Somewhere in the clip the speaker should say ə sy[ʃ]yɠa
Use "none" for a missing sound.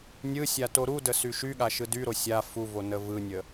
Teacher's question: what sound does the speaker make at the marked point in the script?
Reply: ʃ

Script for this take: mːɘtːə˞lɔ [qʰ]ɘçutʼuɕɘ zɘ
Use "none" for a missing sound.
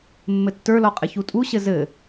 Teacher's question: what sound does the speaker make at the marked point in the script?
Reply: qʼ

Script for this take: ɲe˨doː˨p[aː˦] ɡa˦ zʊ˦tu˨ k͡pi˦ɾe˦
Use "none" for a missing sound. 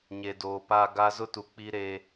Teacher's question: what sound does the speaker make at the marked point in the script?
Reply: aː˦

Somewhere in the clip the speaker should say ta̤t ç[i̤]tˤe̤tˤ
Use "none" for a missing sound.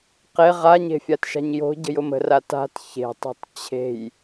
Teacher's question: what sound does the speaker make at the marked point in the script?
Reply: e̤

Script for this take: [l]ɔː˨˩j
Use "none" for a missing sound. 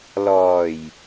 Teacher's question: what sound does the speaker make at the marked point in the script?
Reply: l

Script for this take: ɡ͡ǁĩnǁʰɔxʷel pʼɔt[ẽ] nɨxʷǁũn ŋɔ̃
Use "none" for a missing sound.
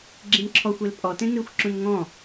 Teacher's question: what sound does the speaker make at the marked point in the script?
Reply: ẽ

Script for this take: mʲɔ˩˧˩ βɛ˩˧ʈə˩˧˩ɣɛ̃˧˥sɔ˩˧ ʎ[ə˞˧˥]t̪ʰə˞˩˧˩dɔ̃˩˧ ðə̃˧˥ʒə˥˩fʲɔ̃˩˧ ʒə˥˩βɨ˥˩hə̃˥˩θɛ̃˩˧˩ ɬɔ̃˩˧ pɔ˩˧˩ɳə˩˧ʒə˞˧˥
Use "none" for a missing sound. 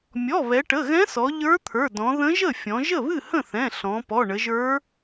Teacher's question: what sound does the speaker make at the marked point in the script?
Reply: ə˞˧˥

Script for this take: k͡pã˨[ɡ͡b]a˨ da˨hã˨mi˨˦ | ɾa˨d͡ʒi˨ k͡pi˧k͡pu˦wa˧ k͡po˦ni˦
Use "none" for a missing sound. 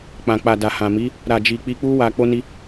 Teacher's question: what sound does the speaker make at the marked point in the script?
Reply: k͡p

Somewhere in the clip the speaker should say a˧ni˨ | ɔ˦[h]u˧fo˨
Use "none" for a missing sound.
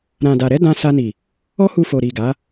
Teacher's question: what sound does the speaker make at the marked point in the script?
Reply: h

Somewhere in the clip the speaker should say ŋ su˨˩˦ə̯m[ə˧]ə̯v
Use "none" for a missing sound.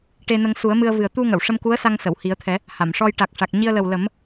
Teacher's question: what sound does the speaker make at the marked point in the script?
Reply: ɨ˧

